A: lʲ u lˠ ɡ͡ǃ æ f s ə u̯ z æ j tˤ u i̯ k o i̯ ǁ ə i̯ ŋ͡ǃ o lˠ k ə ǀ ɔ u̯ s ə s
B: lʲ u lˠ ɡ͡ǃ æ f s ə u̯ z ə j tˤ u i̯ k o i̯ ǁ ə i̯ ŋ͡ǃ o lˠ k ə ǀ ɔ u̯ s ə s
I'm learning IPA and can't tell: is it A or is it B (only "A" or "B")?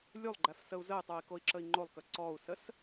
B